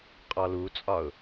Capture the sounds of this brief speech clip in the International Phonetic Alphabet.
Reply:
qʼ ɔ l u t͡sʼ ɒ ʊ̯

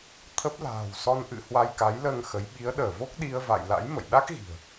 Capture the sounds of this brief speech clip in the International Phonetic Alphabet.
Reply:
t̪ʰ ə˦˥ p̚ l a̤ː˨˩ w s ɔ˧ n ʔ ɨ̰˧˨ h w a˧ j k a˨˦ j l əː˧ ŋ x ə˨˦ j ɓ i˨˦ ə̯ ɗ əː˧˩ v o˦˥ k̚ ɗ i˧ ə̯ v a̰˧˨ j l a̰˧˥ j m ə̰˧˨ j ɗ a˦˥ k̚ ɣ i̤˨˩ ə̯

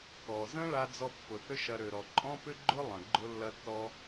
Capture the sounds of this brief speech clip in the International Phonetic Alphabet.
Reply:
k ɔ˩ z ə̃˥ ɭ a˧ d͡z ɔ˧ pː ʊ˩ θ ʏ˥ ʃ ɐ˧ ɾ ø˩ ɾ ɔ˩ ǃʼ ɔ̃˥ p ʏ˥ ɡ͡ǃ ʊ˥ lˠ ə̃˩ ɡ͡ǃ ʊ˧ lː ɐ˧ tː ɔ˧

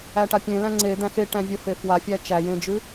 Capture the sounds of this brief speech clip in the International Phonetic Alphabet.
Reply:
æ ʈ a pʲ ẽ l æ̃ ŋ͡ǀ e d̪ æ̃ x e ʈ æ̃ vʲ ə f e f w a fʲ æ t͡ʃ æ j ẽ d͡ʒ ʉ

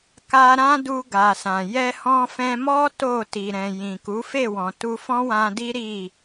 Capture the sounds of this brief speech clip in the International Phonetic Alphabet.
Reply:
k a˧ ɾ ã˦ d u˧ ɡ a˨ s ã˨ j ɛ˧ h ɔ̃˧ f ɛ̃˧ m ɔ˦ t o˦˨ t i˨ ɾ ɛ̃˨ j ĩ˨ k u˨˦ f e˦˨ w ɔ̃˨ t u˧ f ɔ̃˦ w ã˧ d i˦ ɾ i˦˨

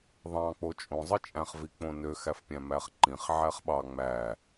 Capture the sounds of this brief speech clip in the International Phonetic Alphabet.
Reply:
ðˤ ɑ̃ k͡p o t͡ʃʼ õ zˤ ɯ t͡ʃʼ æ̃ χ v i k͡p õ n ø x æ f pʲ æ̃ m æ χ ǃ ĩ χ ʕ æ χ ɓ ɑ ŋ͡m æ

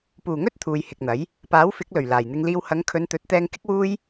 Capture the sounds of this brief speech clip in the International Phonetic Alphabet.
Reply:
p uː˨˩ ŋ ɵ˥ t̚ t̪ʰ uː˨ j h ɪ˨ k̚ n̪ ɐ˨˥ j | p aː˨˥ w f ɪ˨˥ k̚ l ɵ˨˩ ɥ l aː˨˩ j n̪ ɪ˧ ŋ l iː˧ w h ɐ˨˧ ŋ kʰ ɵ˨˧ n t̪ ɵ˨˥ t̚ t̪ ɛː˧ ŋ k ɪ˥ k̚ w uː˥ j

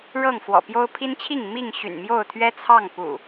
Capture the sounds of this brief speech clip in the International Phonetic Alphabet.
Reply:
ɻ ɤ˥˨ ŋ f w ɔ̰˨˩ p j o˦ ʊ̯ pʰ i˦ n t͡ɕʰ i˥˨ ŋ m i˥˨ ŋ ɕ y̰˨˩ n m j o˥˨ ʊ̯ t̪ʰ ɥ ɛ˦ t͡sʰ ɑ˥˨ ŋ p ṵ˨˩

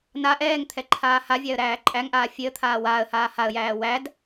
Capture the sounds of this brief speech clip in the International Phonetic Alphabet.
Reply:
n a ʔ ɛː ŋ t̪ʰ ɛ ǃʰ aː h a vʲ æ ə̯ ɾ æː ǃʼ æ ŋ ʔ aː fʲ e ə̯ t̪ʰ aː w aː ə̯ h aː h a ə̯ j æː w æ d

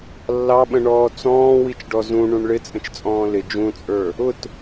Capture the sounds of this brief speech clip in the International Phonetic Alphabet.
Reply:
lː ɑ ɓ ə̃ ɳ ɔː t͡s ɔ̃ː w i t͡ʃ ɖ ɔ z ũ ɳ ũ ɳ ɭ ɪ t͡sʼ ə̃ t͡ʃ t͡sʼ ɔ̃ː l ɪ d͡ʒ ũ t͡sʼ ə˞ | ʊ t

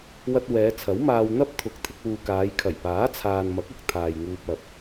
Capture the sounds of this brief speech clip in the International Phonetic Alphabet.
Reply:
w ɐ˧ t̚ w ɛː˨˧ t͡sʰ ɐ˨˥ w m aː˧ w n̪ ɐ˥ p̚ t̪ʰ ʊ˨˥ k̚ t̪ʰ ɪ˧ k̚ w uː˨ k aː˨˧ j kʰ ɐ˨˩ j p aː˨˥ t͡sʰ aː˨ n m ɐ˨˥ k̚ ʊ˨ k̚ t̪ʰ aː˨ j ŋ uː˧ p̚ ɐ˨ p̚

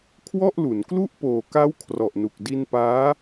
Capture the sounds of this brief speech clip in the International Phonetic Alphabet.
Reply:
kʰ w ɔ˥˩ ʔ l u˩˦ n k l u˥˩ ʔ p oː˨˩ k a˦˥ w kʰ r ɔ˨˩ ʔ n u˨˩ k̚ d i˧ n p aː˦˥

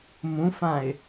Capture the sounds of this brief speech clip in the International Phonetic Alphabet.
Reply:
m ũ f ã ɪ̯

